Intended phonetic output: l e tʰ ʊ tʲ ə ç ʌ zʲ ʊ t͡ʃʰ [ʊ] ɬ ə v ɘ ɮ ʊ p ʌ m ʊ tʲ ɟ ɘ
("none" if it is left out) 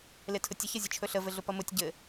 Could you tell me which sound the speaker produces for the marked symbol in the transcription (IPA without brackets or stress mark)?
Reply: ɵ